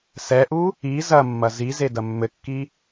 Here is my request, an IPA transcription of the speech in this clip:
s ɛ ʔ u | i z ɐ mː ɐ z i z e d ɐ mː ɘ kː i

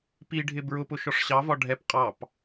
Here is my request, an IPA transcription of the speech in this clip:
p i ɖʱ ɪ b ɹ ʊ p ʊ ʃ ɔ ʂ ɕ ɑ v ɒ ɖʱ ɛ p qʼ ɑ p

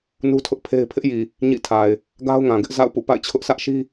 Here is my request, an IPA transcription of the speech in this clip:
n u˦ tʰ ʊ˦ ʔ pʰ e˦ ɪ̯ pʰ ɪ˦ ʔ j i˨ | ɲ ḭ˦˨ tʰ a˨ ɪ̯ | ɡ a˦ ʊ̯ ŋ ã˨ ɡ ɪ˦ ʔ z a̰˦˨ ʊ̯ p ṵ˦˨ p a̰˦˨ ɪ̯ t͡ɕʰ ʊ˦ ʔ sʰ ä˦ ʔ ʃ i˦

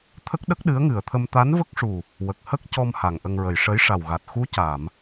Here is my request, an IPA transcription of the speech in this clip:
t̪ʰ ə˦˥ k̚ ɗ ə˦˥ k̚ ɗ ɨ˧˥ ə̯ ŋ ɨ˨˩ ə̯ t̪ʰ ə˧ m t̪ a˧˥ n v ə˦˥ k̚ ʂ u˨˩ | w ə˨˩ k̚ h ə˦˥ k̚ c ɔ˧ m h a˨˩ ŋ ʔ ə˧ ŋ ɹ ə˨˩ j ʂ ə˧˥ j ʂ a˨˩ w ɣ a˨˩ t̚ x u˧˥ c a˨˩˨ m

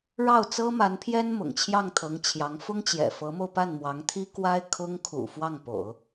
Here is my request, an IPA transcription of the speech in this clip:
ɻ ɑ˥˩ ʊ̯ t͡s ɤ˥ m a˧˥ n pʰ j ɛ˥ n m ʊ̰˨˩ ŋ t͡ɕʰ j ɑ˥˩ ŋ t̪ʰ ɤ˧˥ ŋ t͡ɕʰ j ɑ˧˥ ŋ f ʊ˥ ŋ t͡ɕ j ɛ̰˨˩ f ɤ˧˥ m o˧ ʊ̯ p a˥˩ n m w ɑ˧˥ ŋ t̪ʰ i˥ k w a˥ ɪ̯ kʰ ʊ˥ ŋ kʰ ṵ˨˩ f w ɑ˥˩ ŋ p o̰˨˩˦ ʊ̯

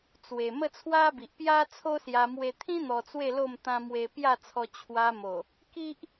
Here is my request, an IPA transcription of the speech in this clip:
t͡s w e˨˩ m ə˥˧ t͡sʰ w a˦ b i˨ ʔ p j a˦ t͡sʰ o˦ s j a˧ m w e˧ t̪ʰ ĩ˦ n̪ ɔ˧ t͡s w e˥˧ l o˥˧ m t̪ ã˦ m w e˧ p j a˥˧ t͡sʰ ɔ˧ t͡ɕʰ w a˧ m o˨˩ | k i˦ ʔ

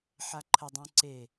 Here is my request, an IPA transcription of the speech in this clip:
ħ a ǃʰ ə dˤ ũ ǀ e

